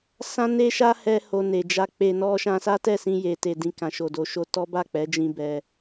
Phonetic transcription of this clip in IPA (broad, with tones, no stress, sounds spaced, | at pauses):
s ã˦ n e˦ ʃ a˦ h ɛ˧ h o˧ n e˨ d͡ʒ a˧ k͡p e˧ n ɔ˦ ʃ ã˧ s a˦ t ɛ˦˨ s ĩ˧ j e˧ t e˧ d ĩ˧ k ã˨ ʃ o˨ d o˨ ʃ o˧ t ɔ˦ b a˦˨ k͡p ɛ˨˦ d͡ʒ ĩ˦ b ɛ˧